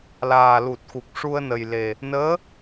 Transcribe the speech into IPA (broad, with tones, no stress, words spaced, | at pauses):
laː˨˩lu˨˩t̚xu˨˩k̚ ʂu˧ə̯nə˨˩jle˨˩ | nəː˧˥